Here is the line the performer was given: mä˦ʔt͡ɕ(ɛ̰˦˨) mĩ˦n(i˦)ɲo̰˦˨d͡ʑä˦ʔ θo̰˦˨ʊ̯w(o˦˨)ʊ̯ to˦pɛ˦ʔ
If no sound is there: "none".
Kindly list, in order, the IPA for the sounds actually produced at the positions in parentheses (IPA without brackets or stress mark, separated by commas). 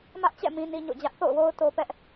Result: ɛ̰˦˨, i˦, o˦